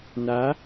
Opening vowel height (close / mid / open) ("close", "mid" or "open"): open